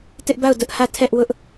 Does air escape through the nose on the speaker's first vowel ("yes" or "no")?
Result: no